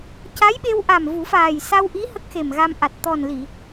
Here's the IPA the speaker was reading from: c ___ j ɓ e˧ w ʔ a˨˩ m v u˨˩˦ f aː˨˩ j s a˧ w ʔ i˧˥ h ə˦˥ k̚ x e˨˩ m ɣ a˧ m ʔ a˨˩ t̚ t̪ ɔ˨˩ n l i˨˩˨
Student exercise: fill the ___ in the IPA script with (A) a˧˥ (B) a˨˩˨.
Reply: A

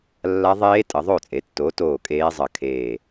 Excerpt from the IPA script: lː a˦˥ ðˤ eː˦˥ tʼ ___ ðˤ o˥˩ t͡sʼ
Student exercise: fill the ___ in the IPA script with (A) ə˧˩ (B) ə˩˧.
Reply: B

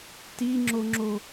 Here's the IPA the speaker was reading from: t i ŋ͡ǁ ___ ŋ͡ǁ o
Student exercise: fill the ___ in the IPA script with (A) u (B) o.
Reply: B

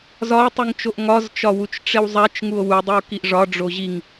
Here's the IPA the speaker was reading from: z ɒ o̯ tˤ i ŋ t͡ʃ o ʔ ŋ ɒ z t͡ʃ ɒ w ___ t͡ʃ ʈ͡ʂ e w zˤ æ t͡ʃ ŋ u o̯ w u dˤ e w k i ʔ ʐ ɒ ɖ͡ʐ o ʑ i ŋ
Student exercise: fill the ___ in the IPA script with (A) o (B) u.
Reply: B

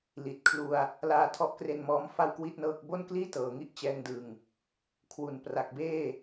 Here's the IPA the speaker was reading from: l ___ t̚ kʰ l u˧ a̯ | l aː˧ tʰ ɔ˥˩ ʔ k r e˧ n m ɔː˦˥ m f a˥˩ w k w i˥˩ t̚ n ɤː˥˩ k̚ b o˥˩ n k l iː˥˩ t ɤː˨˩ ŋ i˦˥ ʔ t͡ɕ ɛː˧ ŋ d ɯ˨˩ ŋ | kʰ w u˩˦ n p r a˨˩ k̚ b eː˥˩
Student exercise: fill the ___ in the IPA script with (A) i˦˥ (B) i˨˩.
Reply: B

